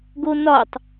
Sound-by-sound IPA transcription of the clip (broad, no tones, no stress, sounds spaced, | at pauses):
ɡ o n ɒ tˤ